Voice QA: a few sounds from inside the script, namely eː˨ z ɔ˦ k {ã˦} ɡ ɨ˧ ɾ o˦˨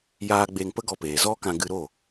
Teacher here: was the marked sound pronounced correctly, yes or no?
no